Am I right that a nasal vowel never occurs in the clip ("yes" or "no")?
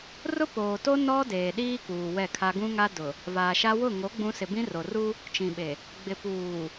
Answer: no